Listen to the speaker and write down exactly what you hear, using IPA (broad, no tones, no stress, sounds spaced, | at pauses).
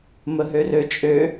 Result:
m ə ɦ ø r ø t͡ʃʼ ø